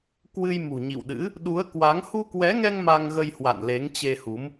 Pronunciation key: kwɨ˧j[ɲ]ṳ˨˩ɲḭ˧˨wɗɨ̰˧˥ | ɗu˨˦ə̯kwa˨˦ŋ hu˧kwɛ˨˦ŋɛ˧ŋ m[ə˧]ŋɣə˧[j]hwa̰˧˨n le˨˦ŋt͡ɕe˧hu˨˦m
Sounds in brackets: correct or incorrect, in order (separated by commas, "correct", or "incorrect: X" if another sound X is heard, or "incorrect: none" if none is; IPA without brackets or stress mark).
incorrect: m, incorrect: a˧, correct